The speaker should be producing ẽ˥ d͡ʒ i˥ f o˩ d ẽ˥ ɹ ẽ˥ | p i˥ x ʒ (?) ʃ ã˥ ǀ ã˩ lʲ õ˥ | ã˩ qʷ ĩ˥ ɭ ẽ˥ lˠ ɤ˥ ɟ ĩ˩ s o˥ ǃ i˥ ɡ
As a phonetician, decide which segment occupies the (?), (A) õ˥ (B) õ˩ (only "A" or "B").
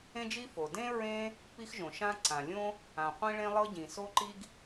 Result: B